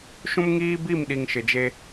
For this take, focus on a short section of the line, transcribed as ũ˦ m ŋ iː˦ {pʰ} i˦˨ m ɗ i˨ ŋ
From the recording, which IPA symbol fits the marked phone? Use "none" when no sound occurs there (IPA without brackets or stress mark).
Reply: b